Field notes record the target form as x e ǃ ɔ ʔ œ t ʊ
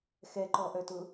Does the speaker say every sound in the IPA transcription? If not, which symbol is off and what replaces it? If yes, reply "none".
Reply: e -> ɛ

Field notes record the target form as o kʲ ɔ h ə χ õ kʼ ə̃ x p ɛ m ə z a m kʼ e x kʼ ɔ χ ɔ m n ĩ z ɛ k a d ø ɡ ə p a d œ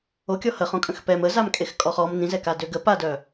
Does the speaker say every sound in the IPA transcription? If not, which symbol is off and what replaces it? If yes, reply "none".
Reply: none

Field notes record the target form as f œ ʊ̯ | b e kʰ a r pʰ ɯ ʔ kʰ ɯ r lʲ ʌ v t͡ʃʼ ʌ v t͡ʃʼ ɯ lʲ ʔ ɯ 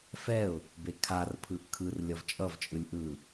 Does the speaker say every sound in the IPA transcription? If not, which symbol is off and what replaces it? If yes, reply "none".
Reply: œ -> ɛ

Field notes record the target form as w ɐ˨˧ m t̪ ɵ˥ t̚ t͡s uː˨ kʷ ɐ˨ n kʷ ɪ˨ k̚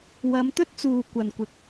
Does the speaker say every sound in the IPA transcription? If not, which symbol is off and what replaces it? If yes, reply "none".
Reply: none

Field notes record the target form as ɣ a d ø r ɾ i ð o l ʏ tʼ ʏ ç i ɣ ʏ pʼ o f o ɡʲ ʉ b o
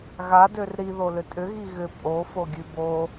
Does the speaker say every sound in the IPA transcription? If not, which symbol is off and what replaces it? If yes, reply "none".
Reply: ç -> ɣ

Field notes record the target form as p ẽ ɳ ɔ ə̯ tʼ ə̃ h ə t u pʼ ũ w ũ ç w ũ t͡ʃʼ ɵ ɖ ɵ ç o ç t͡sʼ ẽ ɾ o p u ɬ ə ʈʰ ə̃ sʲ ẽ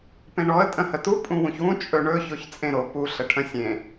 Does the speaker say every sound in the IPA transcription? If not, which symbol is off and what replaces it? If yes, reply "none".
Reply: ɖ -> ɳ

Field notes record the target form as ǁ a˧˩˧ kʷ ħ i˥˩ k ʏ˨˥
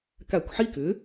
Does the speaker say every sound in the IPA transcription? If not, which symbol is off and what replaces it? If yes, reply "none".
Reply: ǁ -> k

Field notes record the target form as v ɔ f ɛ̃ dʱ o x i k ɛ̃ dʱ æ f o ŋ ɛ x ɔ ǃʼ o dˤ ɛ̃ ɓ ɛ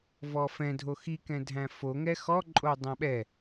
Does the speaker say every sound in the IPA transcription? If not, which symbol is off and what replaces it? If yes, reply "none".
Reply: æ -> æ̃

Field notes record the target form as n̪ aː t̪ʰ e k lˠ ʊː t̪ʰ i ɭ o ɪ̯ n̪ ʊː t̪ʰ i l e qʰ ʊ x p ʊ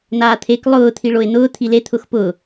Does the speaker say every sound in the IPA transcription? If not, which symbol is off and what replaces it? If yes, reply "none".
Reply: qʰ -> t̪ʰ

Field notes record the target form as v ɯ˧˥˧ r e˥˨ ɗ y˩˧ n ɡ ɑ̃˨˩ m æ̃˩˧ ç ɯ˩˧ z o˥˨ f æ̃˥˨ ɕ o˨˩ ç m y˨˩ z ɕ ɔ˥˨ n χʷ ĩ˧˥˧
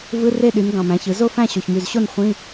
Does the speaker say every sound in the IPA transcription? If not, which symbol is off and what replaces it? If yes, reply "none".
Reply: ɔ˥˨ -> o˥˨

